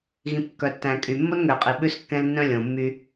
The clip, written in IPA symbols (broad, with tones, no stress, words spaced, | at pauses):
ɣĩ˨pkːœ˨tːæ̃˨ kʼy˨ mːo˦nŋø˨qʼi˨ ɓʉ˦skːɛ̃˦l nːœ̃˦lʲõ˨mːy˦